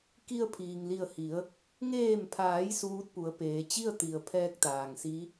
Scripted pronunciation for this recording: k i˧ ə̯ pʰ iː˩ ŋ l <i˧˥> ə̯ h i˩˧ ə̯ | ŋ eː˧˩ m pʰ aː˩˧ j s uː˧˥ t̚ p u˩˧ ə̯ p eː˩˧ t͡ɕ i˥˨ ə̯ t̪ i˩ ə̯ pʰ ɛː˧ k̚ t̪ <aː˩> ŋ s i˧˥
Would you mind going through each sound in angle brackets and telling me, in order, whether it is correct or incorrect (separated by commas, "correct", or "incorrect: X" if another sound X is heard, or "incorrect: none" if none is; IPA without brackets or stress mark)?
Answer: incorrect: i˧˩, correct